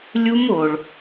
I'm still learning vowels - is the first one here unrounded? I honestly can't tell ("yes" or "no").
no